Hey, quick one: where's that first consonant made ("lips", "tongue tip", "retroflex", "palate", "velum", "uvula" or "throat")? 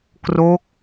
velum